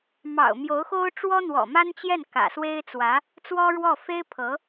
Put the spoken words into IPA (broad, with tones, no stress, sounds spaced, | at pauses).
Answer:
m ɑ̰˨˩ ʊ̯ m j o˧˥ ʊ̯ x o˥ ʊ̯ ʈ͡ʂ w ɔ˥ n̪ w ɔ̰˨˩ m a˥ n t͡ɕ j ɛ˥˩ n k ä̰˨˩ s w e˥ ɪ̯ t͡s w ä˧˥ | t͡s w ɔ˥ ɻ w ɔ˥˩ f e˥ ɪ̯ pʰ ɤ˧˥